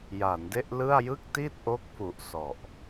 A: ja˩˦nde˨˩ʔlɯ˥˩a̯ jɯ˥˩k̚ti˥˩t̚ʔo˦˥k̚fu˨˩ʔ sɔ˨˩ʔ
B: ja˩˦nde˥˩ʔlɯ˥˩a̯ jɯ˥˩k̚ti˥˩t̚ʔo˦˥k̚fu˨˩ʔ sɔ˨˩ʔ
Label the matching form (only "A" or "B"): B